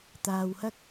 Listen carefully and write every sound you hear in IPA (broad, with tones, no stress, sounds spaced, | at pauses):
t̪ aː˨ w h ɐ˥ k̚